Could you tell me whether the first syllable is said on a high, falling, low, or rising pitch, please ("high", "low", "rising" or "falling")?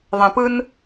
low